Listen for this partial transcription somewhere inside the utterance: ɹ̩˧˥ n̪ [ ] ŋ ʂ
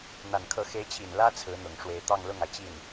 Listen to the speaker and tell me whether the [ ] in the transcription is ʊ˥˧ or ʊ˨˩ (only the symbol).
ʊ˨˩